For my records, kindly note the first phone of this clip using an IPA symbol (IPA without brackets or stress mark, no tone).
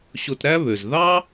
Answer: ɕ